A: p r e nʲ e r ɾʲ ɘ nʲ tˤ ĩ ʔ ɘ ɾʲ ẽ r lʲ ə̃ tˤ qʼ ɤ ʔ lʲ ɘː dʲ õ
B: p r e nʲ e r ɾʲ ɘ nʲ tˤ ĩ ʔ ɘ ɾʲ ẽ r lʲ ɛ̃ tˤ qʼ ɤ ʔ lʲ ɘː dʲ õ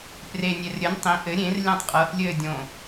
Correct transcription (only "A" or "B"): B